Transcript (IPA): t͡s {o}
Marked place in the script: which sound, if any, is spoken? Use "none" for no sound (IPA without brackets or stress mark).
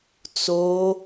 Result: o